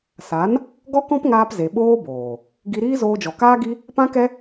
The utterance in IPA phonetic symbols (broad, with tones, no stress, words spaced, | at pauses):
sa˨˦n | ɡɔ˦kɔ̃˦pŋaː˧p ze˨ɓoː˦boː˨ | ɡi˧ɾiː˦zoː˧d͡ʒɔ˨ kaː˦ɡi˦ | pã˦kɛ˦